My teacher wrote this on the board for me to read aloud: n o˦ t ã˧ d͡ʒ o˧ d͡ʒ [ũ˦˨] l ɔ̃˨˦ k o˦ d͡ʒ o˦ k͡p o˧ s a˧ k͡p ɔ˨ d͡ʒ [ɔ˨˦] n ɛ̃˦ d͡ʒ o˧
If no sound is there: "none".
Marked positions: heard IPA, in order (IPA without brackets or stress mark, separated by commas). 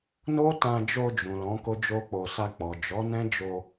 ũ˨, ɔ˨˦